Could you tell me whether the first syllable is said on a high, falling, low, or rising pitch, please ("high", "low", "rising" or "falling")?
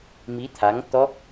rising